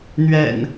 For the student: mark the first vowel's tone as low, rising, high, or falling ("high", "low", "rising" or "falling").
low